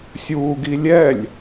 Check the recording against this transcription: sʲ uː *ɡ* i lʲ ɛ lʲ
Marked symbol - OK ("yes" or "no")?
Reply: yes